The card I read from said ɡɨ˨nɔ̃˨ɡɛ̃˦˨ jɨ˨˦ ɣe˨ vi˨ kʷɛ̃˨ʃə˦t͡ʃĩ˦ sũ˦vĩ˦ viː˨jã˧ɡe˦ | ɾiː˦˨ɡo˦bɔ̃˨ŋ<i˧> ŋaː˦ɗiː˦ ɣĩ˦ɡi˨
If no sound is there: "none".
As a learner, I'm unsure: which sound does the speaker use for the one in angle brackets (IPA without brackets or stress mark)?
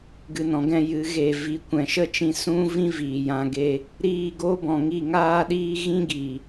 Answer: i˦˨